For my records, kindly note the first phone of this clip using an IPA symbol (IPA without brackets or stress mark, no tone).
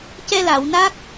c